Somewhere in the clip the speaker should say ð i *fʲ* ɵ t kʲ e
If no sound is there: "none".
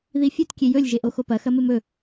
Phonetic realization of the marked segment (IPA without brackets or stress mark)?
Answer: fʲ